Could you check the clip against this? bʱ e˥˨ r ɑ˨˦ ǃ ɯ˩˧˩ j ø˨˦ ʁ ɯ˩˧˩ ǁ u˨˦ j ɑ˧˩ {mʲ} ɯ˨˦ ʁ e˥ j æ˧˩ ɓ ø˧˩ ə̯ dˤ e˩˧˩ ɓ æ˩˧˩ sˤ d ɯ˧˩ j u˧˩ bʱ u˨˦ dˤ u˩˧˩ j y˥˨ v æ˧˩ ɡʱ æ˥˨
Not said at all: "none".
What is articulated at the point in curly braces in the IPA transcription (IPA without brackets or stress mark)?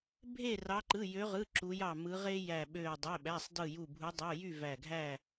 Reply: m